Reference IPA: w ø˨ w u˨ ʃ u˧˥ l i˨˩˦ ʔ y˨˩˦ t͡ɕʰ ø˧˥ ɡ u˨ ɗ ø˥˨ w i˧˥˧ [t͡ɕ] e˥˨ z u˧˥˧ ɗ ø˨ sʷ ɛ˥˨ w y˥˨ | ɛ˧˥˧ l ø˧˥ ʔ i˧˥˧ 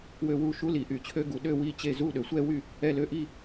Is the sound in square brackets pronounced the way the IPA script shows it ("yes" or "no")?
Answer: yes